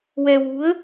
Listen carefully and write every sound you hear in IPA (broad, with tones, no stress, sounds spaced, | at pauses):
w ɛ˧ w u˧˥ ə̯